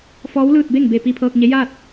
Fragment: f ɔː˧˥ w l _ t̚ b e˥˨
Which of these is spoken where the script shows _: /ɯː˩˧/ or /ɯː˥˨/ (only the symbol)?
ɯː˥˨